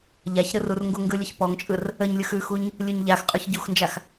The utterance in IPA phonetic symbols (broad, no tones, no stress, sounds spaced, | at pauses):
ʎ a ç ɾ ɯ r u r ŋ ɡ u ŋ ɡ ɯ lʲ ə ç p ɔ ŋ t͡ʃʼ ɯ r | ə ɲ lʲ ɯ x ʉ x u ɲ | lʲ ʉ ɲ ʎ a x qʼ ʉ ç ɟ u x n d͡ʒ a x